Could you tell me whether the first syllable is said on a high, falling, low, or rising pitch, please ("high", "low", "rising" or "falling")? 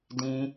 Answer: high